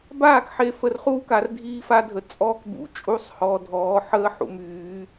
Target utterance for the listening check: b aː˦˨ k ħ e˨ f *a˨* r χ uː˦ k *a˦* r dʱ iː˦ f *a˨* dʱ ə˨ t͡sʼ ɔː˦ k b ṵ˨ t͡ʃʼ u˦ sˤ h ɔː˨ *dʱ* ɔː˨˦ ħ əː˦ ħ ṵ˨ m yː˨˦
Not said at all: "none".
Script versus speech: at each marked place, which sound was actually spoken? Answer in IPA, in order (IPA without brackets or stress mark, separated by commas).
ə˨, a˨, a˦, dʱ